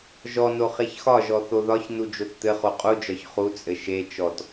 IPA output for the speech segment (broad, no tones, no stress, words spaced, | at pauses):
ʒɔno χeçxɒʒɔ θoðɒç nud͡ʒott̪ɘ χoqʼud͡ʒɒç χut͡sʼɘ ʃe t͡ʃɔt